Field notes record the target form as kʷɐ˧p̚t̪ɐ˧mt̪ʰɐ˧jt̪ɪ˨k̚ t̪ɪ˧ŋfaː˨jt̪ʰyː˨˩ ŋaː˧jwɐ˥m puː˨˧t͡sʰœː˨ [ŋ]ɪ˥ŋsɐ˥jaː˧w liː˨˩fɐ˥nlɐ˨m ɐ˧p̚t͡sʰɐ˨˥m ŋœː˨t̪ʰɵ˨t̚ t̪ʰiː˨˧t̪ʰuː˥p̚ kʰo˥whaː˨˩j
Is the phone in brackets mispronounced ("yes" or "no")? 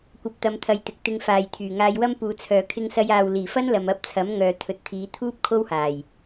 yes